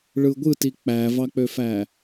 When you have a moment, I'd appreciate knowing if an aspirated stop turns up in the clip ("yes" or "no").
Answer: no